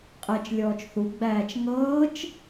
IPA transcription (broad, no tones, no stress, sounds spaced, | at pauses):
qʼ ɛ t͡ʃ lʲ ɔː t͡ʃ θ u ɡ͡b æː t͡ʃ ŋ ɤː t͡ʃ